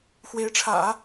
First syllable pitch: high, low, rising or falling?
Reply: rising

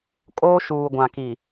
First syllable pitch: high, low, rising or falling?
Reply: high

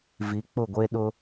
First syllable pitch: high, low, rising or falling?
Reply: rising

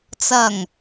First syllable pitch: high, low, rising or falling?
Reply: low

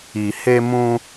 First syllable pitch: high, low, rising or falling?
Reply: low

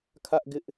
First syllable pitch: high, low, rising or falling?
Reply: high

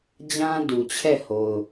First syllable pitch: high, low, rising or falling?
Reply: high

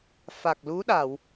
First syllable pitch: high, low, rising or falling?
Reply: low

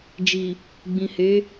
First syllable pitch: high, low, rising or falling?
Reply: low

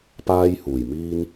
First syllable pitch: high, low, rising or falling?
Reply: high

